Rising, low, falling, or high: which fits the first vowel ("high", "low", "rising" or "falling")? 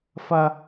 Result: high